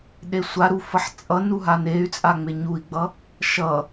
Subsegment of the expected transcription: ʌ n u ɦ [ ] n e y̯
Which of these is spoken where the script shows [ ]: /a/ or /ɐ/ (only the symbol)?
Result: a